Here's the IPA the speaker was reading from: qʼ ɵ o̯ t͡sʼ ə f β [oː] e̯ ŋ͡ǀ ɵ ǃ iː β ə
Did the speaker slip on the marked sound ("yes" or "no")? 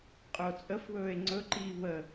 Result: yes